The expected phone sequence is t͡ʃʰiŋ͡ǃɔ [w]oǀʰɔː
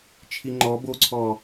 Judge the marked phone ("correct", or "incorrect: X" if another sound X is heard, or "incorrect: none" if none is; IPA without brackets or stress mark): incorrect: b